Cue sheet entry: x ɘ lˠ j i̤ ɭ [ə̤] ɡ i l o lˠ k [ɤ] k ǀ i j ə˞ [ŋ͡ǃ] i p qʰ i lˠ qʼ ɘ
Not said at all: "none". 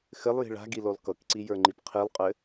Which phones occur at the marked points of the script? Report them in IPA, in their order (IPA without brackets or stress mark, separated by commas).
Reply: a̤, ɤ, ŋ͡ǃ